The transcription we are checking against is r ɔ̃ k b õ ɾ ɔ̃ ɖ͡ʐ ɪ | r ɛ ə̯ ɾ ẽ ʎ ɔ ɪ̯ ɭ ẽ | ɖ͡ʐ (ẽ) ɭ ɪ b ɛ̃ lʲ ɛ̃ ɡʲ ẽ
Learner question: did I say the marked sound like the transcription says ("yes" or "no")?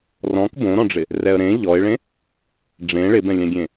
yes